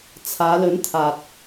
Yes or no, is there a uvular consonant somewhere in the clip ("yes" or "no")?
no